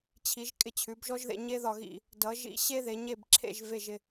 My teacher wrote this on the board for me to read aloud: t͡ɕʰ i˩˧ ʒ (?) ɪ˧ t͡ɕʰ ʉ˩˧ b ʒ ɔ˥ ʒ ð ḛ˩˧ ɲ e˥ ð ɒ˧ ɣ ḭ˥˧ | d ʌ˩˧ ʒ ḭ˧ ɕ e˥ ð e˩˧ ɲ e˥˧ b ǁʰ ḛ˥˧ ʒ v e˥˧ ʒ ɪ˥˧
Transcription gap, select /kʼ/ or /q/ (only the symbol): kʼ